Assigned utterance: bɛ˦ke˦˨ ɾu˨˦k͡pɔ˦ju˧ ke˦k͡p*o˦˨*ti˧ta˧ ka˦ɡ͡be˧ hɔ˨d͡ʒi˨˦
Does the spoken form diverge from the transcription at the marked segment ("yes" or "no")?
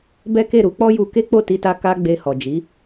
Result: no